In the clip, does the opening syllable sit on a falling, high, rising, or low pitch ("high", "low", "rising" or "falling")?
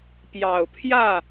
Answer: low